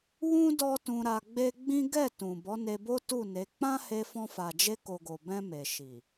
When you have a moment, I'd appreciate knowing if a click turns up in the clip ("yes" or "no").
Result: no